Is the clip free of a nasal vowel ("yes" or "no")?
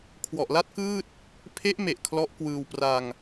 yes